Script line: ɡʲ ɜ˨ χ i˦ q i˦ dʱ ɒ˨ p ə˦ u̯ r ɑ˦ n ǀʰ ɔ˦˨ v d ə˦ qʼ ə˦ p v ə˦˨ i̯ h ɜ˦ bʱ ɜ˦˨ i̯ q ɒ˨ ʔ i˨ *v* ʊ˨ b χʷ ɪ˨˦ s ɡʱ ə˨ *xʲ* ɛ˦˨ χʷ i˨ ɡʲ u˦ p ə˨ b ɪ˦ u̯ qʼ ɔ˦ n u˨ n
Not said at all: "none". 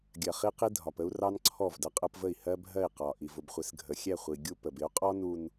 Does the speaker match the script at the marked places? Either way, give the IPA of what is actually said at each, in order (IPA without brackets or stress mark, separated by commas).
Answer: v, xʲ